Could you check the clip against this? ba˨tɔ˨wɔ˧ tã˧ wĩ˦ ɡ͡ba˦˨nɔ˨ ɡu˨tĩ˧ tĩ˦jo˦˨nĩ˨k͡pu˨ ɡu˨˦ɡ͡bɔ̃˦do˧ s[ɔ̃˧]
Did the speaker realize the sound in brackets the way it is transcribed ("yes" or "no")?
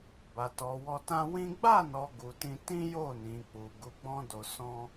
yes